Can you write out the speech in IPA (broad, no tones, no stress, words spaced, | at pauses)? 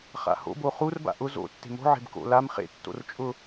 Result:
χa̰ho̰bo χurba̰ ʔʊ zo̰ tːe̤mo̤ ʕe̤bko̰ lam χḛtːo̰r t͡ʃʼʊ